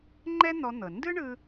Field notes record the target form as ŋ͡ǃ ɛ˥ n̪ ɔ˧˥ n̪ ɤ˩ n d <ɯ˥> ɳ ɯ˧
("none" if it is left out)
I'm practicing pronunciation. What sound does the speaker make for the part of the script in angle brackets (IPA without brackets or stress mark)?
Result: ɯ˥